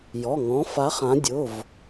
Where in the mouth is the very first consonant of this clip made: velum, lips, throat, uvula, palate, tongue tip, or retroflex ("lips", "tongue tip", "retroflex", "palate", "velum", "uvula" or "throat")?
palate